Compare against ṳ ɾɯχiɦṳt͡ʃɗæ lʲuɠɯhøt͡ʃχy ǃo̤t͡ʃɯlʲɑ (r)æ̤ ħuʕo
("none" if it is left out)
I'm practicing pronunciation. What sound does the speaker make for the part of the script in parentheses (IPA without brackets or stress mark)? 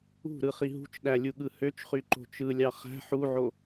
χ